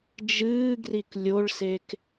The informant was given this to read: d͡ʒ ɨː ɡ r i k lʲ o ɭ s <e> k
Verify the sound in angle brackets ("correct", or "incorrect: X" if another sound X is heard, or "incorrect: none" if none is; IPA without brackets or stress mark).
correct